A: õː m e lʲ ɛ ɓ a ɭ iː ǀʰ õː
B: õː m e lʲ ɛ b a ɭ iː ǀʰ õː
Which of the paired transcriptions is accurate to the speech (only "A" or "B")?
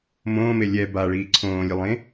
B